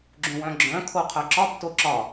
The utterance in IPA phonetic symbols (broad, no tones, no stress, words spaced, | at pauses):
ɡ͡ǁũwœ̃ɡ͡ǁœ̃ kʰoqʰœǁɒb toǁɒ